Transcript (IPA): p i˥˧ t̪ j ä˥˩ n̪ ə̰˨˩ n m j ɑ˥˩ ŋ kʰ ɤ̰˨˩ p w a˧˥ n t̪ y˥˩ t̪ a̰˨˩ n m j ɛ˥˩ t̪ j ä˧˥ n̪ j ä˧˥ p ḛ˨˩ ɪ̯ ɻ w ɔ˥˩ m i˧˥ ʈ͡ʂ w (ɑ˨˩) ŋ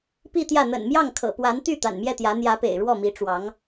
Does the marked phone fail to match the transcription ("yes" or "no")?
yes